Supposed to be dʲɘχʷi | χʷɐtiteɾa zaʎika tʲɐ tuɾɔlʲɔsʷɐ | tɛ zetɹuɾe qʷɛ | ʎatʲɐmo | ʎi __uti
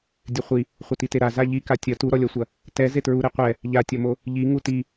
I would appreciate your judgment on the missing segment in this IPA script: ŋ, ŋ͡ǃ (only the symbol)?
ŋ